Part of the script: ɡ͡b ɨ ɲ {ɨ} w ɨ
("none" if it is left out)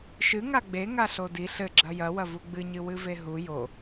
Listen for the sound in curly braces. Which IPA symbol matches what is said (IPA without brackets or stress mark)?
ɨ